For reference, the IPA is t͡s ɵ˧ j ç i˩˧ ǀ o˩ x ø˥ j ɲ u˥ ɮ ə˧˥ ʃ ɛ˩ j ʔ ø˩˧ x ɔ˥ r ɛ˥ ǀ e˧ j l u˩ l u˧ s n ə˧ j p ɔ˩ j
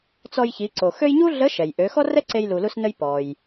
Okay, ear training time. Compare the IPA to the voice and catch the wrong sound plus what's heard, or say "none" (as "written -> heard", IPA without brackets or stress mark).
ɵ˧ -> ɔ˧